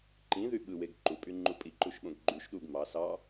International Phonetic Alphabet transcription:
ǃĩðy ɓɯweɡ ǃupʼyŋ͡ǃu pʼiǃuʃɓõɡ ɡ͡ǃyʃ ɗuɡ mɑ sɑ

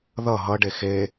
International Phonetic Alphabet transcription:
ðʌ ɦʌɖe xe

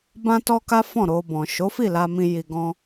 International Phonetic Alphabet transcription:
bã˦tɔ˦ka˦ fɔ̃˦˨ɾo˧bɔ̃˨ ʃo˨˦fi˦˨la˧mĩ˧ ji˧ɡɔ̃˦

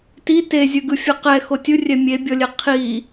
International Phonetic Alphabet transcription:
ti te zʲɯɡɯfʲɯqɛ xotʲɯ rʲɛmʲebʲɔlʲɛ qʰi

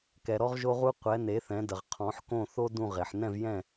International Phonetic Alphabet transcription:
kɛ˨ɾɔ˦ʁʒo˦ʁu˦ qʷɛ˨˦ne˨˦θɛ̃˨˦ də˨ʁqʰɔ̃˨˦ħkõ˦˨ θo˦ dũ˦˨ʁe˨ħ nɛ̃˦˨vjɛ̃˦˨

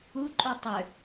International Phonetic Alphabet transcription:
u ǃʼutˤʏ

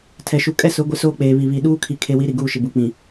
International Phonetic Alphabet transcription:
tʰɛ˨ʃu˨ kʼɛ˦sʊ˨˦ ɡʷɪ˦soː˦k͡peː˨βi˨ βi˨ ɗuː˦kʰi˨kʰe˨ wi˨˦ ɾi˨ɡuː˦˨ʃɪ˨ bu˨k͡pĩ˨

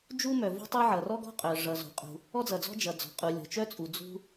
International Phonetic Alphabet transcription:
d͡ʒu˥mœ˩ vo̤˥tˤo˥ ʕʌ˩rɔ˥ɡɔ̤˥qʼœ˩ ʐʌ˩zo̤˩ qʼṳ˩ | ɔ˥d͡zʌ˩d͡zɔ̤˥ d͡ʒʌ˩d͡zɔ̤˩qʼu˩ lʲɔ̤˩t͡ʃœ˥t͡sʼu˩ d͡zṳ˥

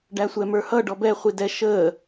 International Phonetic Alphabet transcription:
ɖæsʷɛmə˞hʌ ɖɔbɛ χʷidɛ ʃəː

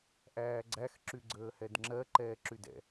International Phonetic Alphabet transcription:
ʔæːɡ͡ǀæx ǁyɡ͡ǀəːhɛdŋ͡ǁɜ ǃɛːǁydɛ̰

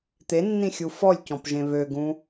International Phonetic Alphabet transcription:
t̪enːĩxʲu fɔlʲcɔ̃pʒẽ βøɡũ

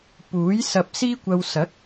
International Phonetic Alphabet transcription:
puː˨˥j sɐ˧p̚siː˥kʷɐ˧w sɐ˨˥k̚

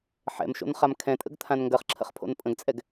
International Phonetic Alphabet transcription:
ħɛ̰mʃo̰n χamkʰɛ̃tʼə̰ɡ t̪ʰãnŋɡɜχǁʰə̰χ pʰo̰npʼə̃ɡt͡sʼɛɡ

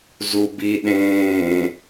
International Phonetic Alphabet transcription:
zubi ɗẽː

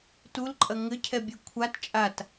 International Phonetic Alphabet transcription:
tulǃʼɐ ŋɘcʰɛbʲe kʷʰat t͡ʃʼat

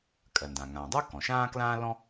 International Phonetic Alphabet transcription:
kʼɜ˩ndã˩ ŋãː˩dˤʉ˥ kɔ̃˩ʃãː˥klãː˥lɔ̃˥

